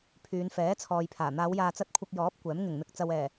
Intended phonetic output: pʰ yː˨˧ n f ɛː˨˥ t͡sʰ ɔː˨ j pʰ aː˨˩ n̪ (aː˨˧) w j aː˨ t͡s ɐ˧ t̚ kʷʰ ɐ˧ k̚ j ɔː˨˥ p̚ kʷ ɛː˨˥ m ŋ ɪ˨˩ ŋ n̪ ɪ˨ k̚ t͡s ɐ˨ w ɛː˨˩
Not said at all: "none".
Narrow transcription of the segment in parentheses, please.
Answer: aː˨˧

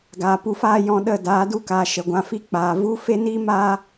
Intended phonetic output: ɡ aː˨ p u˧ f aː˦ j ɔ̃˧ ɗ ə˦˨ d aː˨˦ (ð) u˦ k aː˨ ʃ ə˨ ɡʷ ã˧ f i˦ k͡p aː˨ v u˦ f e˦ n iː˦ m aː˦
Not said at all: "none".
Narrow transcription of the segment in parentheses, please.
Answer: d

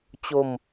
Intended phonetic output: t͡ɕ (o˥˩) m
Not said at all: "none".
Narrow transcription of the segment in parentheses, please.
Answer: o˧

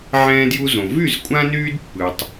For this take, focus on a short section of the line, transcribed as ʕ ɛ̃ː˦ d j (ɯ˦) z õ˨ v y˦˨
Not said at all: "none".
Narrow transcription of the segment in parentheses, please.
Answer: u˦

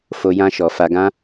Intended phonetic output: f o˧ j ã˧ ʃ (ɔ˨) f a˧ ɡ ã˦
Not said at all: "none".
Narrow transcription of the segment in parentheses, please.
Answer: ɔ˨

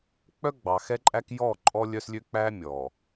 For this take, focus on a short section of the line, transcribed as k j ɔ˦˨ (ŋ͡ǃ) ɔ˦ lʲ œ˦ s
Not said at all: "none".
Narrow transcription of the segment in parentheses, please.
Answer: ǃʼ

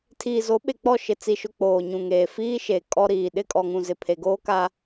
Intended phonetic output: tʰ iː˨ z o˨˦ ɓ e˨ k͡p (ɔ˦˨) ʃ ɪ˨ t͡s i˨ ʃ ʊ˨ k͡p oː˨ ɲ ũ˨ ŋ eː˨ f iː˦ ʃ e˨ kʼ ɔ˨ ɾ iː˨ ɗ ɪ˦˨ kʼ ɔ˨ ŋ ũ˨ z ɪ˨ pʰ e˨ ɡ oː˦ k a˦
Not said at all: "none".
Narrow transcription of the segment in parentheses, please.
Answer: ɔ˦˨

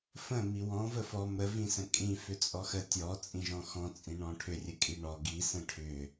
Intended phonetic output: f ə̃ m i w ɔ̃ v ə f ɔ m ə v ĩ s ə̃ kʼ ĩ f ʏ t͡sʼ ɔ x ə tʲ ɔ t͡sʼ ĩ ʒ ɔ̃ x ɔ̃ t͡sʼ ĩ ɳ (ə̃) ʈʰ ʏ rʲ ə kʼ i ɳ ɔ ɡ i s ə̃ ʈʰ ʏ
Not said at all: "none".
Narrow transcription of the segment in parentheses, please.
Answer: ɔ̃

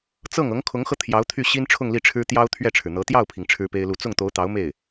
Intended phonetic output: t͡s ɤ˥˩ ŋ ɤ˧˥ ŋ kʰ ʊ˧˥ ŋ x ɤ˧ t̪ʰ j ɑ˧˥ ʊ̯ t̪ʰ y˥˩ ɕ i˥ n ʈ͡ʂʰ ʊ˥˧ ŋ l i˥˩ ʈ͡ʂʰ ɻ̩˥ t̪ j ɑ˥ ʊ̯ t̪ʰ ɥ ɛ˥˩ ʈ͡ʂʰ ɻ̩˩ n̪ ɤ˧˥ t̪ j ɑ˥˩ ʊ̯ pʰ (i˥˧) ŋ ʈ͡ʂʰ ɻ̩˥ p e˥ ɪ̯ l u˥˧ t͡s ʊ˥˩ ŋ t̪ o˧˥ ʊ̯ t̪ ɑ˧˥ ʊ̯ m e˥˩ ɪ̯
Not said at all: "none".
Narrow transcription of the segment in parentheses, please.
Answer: i˩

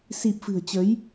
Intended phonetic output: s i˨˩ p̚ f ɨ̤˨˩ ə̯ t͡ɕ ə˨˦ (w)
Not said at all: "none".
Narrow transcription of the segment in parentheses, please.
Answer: j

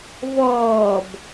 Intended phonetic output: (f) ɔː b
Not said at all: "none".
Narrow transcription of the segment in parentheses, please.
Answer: v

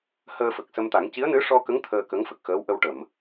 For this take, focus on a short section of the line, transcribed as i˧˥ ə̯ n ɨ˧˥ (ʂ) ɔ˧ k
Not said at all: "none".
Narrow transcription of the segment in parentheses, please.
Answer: ʂ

